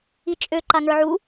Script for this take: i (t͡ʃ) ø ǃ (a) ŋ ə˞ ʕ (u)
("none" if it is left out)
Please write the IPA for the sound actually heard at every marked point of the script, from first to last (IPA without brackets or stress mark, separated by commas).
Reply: t͡ʃʼ, a, u